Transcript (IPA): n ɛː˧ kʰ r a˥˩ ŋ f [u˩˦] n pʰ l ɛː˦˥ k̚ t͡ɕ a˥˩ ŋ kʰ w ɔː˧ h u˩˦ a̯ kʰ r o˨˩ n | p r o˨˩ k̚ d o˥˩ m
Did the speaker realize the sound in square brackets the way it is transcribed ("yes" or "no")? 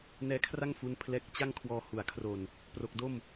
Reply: no